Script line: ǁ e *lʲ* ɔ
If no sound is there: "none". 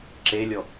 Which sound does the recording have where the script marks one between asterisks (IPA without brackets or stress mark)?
lʲ